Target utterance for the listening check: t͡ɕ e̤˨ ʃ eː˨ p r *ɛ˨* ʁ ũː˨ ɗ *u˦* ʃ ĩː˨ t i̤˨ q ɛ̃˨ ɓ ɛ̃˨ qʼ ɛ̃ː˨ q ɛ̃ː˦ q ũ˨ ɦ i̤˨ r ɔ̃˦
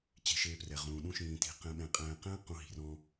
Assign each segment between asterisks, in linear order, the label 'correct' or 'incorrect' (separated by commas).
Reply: correct, incorrect